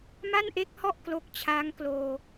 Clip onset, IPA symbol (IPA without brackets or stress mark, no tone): m